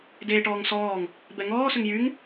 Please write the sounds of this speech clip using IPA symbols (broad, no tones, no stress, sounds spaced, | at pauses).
d eː ʈ ɔː ŋ s ɔː ŋ | b ɛ ŋ ɔː s ʏ ŋ j y ŋ